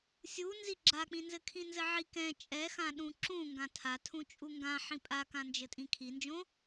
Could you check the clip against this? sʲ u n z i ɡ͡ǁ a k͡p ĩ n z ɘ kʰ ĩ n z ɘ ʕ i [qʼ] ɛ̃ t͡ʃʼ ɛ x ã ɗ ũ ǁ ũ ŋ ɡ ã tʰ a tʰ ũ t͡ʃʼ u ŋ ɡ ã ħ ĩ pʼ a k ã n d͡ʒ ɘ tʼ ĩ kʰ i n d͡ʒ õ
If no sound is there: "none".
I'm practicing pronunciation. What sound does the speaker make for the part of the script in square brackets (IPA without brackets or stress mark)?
k